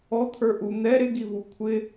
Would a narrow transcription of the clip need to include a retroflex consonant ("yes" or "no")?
no